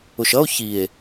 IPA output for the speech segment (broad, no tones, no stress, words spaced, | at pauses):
ʊʃʌo̯ çie̯